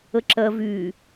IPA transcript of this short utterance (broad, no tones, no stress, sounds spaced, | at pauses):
ə ǁ ɜ v y